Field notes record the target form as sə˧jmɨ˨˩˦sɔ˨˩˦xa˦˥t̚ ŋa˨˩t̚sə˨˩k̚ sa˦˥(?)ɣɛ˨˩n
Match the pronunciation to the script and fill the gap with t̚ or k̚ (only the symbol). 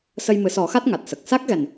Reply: k̚